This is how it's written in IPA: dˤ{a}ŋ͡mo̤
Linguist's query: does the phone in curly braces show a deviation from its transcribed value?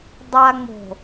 no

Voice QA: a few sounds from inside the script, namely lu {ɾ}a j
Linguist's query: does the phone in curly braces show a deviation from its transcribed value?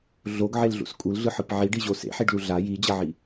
yes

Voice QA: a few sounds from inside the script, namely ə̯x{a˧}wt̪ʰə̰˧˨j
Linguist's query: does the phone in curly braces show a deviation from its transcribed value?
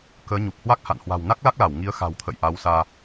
yes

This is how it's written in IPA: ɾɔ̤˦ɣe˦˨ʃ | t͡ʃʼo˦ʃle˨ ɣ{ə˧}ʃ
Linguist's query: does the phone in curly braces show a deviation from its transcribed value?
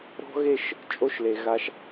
yes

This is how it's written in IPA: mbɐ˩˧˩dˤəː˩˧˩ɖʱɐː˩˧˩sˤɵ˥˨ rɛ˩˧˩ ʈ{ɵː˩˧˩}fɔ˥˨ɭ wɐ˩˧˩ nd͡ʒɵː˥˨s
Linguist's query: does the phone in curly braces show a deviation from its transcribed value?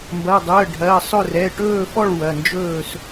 yes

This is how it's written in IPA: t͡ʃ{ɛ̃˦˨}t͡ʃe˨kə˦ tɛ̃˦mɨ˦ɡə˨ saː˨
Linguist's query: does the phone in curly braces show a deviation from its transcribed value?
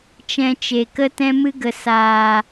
yes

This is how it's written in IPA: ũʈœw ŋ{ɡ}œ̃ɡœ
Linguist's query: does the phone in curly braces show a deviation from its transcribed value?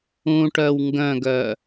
no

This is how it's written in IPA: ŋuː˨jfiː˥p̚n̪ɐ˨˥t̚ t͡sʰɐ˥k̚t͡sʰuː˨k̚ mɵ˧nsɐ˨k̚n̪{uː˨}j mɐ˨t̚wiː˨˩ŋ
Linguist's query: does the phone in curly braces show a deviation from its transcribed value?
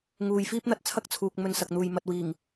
no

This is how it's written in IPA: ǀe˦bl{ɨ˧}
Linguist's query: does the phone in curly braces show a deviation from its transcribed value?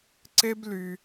yes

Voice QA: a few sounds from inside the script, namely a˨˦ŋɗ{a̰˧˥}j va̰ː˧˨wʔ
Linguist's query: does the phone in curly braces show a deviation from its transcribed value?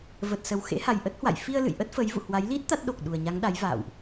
yes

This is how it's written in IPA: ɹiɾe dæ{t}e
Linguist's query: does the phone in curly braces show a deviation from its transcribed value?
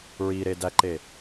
yes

